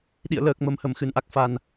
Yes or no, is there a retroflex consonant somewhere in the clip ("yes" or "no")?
no